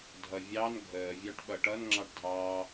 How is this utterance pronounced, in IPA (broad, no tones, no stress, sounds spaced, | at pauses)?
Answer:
dʱ ʌ vʲ ɑ n ɡʱ əː vʲ ɑ ʈ ɓ ʌ ʈ ʌ n ŋ͡ǁ ɑ ʈ dʱ ɑː